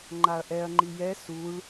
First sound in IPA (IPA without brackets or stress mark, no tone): ŋ͡ǃ